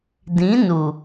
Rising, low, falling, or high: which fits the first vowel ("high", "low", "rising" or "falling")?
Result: rising